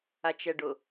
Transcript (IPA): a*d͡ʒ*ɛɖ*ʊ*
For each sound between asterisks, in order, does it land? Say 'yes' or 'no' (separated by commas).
no, yes